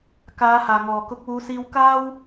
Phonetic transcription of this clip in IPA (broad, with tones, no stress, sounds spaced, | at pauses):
k aː˨˧ h aː˨˩ ŋ ɔː˨˩ k ʊ˨˥ k̚ w uː˨˧ s iː˧ w k aː˥ w